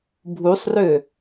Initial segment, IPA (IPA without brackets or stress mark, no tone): bʱ